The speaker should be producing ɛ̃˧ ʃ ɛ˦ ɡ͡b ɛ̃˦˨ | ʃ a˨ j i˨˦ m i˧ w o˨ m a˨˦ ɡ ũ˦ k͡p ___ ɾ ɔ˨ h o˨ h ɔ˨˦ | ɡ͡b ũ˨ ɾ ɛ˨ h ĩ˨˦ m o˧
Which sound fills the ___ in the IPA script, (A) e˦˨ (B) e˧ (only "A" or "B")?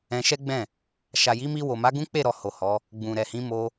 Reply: A